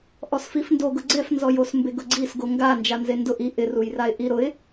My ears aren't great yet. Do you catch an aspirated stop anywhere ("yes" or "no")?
no